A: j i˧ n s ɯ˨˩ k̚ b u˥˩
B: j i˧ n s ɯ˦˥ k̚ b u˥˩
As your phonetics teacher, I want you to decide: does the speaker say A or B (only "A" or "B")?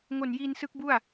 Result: B